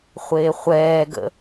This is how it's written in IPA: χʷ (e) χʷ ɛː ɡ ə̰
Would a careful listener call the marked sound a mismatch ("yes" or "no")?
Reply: yes